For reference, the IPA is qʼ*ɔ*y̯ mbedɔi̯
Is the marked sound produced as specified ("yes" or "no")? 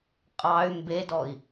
no